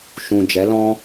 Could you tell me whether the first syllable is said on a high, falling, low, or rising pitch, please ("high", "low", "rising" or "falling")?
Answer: low